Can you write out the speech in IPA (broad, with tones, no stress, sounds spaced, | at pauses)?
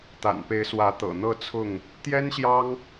t̪ a̰˨˩ n p e˨˦ ɪ̯ s w ä˨˦ t̪ ɤ̰˨˩ n̪ ɤ˥˨ t͡sʰ ʊ˥˨ ŋ | t̪ j ɛ˦ n ɕ j ɑ˦ ŋ